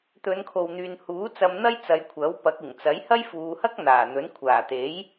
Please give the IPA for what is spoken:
t̪ɵ˨˧nkʰo˨wn̪yː˨nhuː˨˥ t͡sɐ˧mn̪ɐ˥j t͡sɐ˨˧jkʷʰɐ˨˥wpɐ˨˥k̚ ɪ˨˩ŋt͡sɐ˨˥j hɐ˥jfuː˨˧hɐ˥k̚n̪aː˨˩ n̪ɵ˨˥n kʷʰaː˨˩t̪e˨˥j

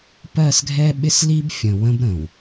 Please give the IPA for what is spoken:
pɜ˦˨sɡʱɛ˦ɓɪ˦s li˦bfʲə̃˨ wə̃˦bɾə̃˨w

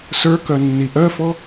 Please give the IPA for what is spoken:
sə˞kœnːi ʔœfɔ

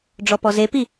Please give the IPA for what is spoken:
ɖ͡ʐɔpɔzepi

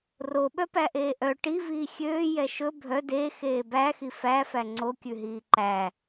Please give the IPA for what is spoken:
roɓœpæʔeː ʔœ ʈiviː xʲøːjɛ ʃɵ bʱœ dexeː bæxi fæfæ ŋ͡ǀokʲʉɦiː ǃæ

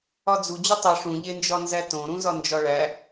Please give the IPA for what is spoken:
ɒd͡zu d͡ʑutˤi ʂũ ʎend͡ʒɒnzætõ ɾũzɒnd͡ʒɒɭæ

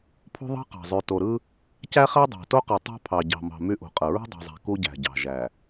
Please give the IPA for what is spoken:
pʰṳ˦ðˤɑ̤˦qɑ̤˨zˤy˨ to˨ɾɯ˦ | cæ˦χæ˦ dˤɑ̤˨to˦qɯ˨tˤɑ̤˦ pʰɑ˨ɟɑ̤˨mɑ̤˨ my˦ʔṳ˨qʼɯ˨ ɹṳ˦dˤṳ˨zˤæ̤˨ ku˦ɟæ̤˨ɟɑ̤˨ʒæ˨

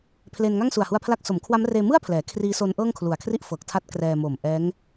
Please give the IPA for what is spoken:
pʰle˧n ŋa˥˩ŋsu˨˩a̯hu˧a̯pʰla˦˥k̚ so˩˦mkʰwa˦˥mreː˧ mɯ˥˩a̯ pʰlɛː˩˦ kʰriː˦˥so˦˥nʔɤː˥˩ŋ kʰlu˨˩a̯kʰri˥˩ʔfɤː˨˩k̚tʰa˦˥t̚ krɛː˧mo˨˩mʔɛː˦˥ŋ

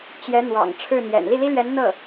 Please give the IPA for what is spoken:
t͡ɕjɛ˧˥n̪wɑ̰˨˩ŋ ʈ͡ʂʰɻ̩˥˩n̪jɛ̰˨˩n li˥˩li˥lɥɛ˧˥n n̪ɤ˥˩

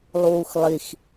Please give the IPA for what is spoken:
lˠuːxlˠix

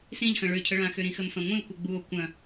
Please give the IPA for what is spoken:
sĩʎxɐ̃ ɭøcʰəɭãxø ɾĩxəmfɐ̃ŋʷĩo̯ kʷɘɡ͡buo̯ kʷɐ̃

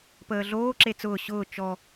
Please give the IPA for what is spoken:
pəːɮoː ǁet͡sʊː ɕʊː t͡ʃɔ

